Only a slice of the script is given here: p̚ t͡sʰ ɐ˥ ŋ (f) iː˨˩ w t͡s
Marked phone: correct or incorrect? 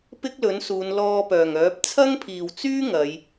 incorrect